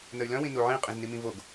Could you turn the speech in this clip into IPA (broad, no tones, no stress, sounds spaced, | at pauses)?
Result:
n ə y̯ l œ̃ w ĩ n u ʕ ĩ qʼ ĩ z n i m ĩ v o ɡ